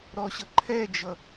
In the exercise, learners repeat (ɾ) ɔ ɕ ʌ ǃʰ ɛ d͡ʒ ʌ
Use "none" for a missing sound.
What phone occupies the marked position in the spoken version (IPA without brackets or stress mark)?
ɾ